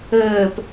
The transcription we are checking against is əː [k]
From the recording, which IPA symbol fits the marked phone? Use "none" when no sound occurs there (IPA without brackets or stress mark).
p